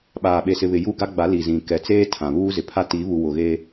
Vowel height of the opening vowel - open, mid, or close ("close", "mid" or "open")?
open